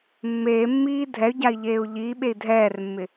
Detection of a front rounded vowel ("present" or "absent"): present